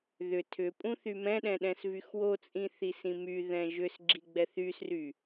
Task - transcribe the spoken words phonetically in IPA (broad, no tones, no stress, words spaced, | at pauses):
ðʏ tʰʏpʼũ θymɛ̃ɗɛ̃ ɗɛ̃svyxwot͡sʼĩ θisĩmyðɛ̃ ʒʏsɡ͡ǁi ɡ͡bɛθysry